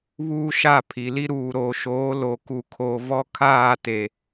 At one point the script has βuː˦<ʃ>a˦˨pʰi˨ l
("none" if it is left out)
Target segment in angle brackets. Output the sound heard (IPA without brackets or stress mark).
ʃ